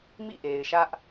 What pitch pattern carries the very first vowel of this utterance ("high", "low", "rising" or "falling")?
falling